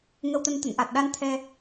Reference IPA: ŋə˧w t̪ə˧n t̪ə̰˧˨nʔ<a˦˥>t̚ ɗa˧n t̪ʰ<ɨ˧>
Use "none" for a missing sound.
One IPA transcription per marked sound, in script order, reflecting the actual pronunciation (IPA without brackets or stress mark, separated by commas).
a˨˩, ɛ˧